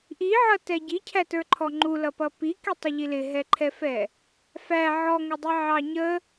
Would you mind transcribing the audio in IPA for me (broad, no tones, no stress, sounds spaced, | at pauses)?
ʔ i ʕ ʌ t ɛ ɟ i cʰ æ t ə˞ ǃʰ ɔ ŋ͡ǃ u l ʌ p ʌ p i k i tˤ ʊ ʎ i l ɪ ɦ ɛ ǃʰ ɛ f ɛ | f æ ʕ ɔ ŋ ə dˤ ɪ ʕ ɑ ɲ ə